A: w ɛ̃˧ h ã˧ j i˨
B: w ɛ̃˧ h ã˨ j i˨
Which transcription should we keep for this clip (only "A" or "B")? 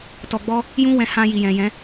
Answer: A